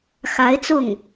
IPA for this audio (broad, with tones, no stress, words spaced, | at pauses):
xa˧˥ɪ̯t͡sʊ˥˩ŋ